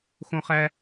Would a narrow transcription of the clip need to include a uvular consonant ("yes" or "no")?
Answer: yes